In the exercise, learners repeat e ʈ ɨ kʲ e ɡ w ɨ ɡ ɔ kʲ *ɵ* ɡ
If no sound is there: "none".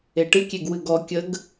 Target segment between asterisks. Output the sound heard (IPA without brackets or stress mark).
ə